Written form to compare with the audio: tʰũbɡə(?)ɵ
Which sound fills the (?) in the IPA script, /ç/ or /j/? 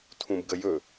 j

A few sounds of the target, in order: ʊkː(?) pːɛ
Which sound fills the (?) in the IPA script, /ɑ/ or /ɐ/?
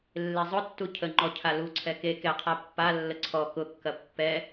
ɐ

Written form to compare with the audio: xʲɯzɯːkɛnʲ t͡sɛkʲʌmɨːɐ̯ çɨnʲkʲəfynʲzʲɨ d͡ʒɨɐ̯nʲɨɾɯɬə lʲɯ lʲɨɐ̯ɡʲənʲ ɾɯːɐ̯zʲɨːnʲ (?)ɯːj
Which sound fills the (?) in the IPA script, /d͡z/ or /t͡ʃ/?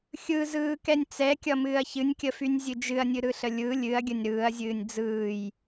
d͡z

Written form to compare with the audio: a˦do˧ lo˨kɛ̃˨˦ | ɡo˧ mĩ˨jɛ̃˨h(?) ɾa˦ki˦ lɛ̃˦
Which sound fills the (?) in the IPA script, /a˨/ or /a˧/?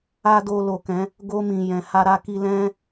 a˧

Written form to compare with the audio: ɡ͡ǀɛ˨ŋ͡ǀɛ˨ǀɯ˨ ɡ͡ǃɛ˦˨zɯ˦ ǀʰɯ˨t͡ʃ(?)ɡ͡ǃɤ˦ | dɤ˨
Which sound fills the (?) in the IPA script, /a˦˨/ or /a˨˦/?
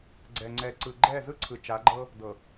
a˨˦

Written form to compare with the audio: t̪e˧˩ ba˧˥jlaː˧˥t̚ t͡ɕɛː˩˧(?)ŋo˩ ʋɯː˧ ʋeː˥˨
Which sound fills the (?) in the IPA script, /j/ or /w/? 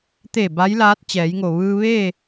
j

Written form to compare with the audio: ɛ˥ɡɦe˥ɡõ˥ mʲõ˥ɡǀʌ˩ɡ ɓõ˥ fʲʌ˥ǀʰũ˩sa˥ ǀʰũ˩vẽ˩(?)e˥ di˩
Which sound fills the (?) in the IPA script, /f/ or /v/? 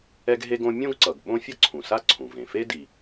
f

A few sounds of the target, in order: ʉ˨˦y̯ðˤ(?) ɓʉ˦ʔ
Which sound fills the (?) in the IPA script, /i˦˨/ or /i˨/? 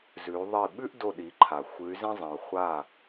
i˦˨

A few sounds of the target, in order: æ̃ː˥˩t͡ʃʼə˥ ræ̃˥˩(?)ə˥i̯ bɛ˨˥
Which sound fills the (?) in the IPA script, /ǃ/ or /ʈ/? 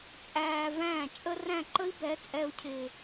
ǃ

